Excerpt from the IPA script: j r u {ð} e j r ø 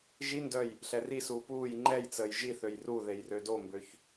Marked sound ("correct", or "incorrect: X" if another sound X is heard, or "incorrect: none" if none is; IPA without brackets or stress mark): correct